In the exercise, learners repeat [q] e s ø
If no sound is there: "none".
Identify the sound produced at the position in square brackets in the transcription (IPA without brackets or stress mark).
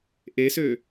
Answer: ʔ